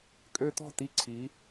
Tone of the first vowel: high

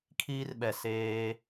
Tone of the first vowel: high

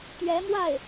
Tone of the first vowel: rising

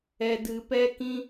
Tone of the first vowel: low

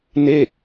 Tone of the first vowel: falling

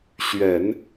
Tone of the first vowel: low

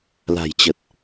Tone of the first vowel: low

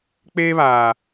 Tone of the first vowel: high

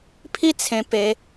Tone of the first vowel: high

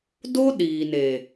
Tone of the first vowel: high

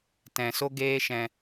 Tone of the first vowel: low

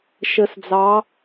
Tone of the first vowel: low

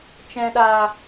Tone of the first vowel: low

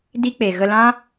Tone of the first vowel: high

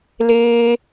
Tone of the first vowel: high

